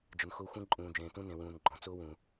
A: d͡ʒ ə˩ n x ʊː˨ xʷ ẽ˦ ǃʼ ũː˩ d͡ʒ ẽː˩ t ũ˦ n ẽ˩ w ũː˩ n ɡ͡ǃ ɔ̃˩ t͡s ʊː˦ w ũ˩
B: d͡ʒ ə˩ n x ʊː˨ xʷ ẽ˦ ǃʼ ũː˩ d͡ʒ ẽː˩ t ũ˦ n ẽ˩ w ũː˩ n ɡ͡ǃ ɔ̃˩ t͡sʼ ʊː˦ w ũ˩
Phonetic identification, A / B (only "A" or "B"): A